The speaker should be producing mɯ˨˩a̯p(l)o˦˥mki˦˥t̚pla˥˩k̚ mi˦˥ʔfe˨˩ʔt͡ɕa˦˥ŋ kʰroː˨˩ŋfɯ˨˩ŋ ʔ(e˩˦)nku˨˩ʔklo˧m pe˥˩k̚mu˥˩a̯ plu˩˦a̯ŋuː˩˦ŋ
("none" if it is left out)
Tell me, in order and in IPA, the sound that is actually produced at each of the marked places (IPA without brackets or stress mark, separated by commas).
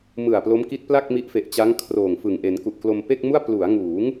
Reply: l, e˩˦